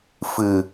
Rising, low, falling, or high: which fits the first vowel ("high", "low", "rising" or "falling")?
low